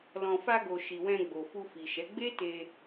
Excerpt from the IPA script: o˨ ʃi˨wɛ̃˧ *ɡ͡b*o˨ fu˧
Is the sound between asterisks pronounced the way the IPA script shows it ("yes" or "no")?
yes